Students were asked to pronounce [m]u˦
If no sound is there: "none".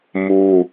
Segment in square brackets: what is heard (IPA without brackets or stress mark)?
m